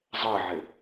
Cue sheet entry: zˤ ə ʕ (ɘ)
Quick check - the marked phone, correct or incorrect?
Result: correct